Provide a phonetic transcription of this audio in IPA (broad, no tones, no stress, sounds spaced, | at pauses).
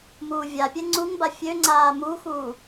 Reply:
m uː vʲ a pʲ ɛ ŋ͡ǀ u ŋ b a fʲ ø ŋ͡ǀ aː m u x uː